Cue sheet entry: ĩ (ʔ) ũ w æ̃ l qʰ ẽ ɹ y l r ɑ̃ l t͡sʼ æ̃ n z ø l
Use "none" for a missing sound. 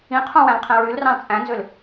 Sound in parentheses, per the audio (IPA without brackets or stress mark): qʰ